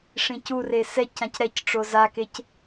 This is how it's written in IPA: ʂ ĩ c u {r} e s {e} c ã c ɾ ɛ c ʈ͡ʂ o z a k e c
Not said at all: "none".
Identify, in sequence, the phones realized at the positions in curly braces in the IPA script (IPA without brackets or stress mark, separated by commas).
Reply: r, ɛ